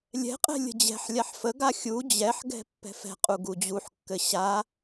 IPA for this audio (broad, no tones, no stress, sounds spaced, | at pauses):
lʲ ɛ̤ qʼ ɛ̤ lʲ ə̤ d͡ʑ ɛ̤ ħ lʲ a ħ f ə ɡ a xʲ u d͡ʑ ɛ ħ ɡ ɛ̤ pː ɛ̤ f ɛ̤ qʼ u ɡ u d͡ʑ u ħ kː ɘ ɕ a